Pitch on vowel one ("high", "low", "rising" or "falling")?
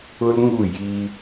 high